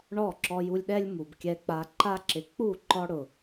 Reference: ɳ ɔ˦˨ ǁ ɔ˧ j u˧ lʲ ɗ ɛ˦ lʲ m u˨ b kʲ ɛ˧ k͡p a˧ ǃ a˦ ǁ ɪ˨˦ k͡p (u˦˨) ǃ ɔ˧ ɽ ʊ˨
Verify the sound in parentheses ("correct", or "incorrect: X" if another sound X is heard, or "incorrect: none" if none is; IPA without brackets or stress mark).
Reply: correct